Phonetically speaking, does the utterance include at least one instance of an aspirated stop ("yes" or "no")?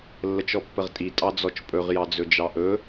no